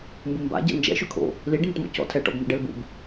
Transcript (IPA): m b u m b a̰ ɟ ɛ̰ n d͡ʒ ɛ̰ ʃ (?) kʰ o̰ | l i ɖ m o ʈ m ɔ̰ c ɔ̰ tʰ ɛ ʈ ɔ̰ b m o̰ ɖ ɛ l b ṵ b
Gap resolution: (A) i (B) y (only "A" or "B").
B